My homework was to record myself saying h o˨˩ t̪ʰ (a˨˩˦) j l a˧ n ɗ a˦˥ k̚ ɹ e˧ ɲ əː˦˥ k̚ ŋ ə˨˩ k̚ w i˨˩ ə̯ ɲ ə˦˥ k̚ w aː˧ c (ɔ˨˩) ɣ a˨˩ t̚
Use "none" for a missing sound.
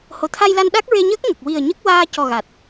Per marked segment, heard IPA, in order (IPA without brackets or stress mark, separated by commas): a˧, ɔ˨˩